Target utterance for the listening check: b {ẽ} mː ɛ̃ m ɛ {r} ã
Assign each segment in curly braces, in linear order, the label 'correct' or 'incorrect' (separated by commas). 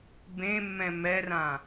correct, correct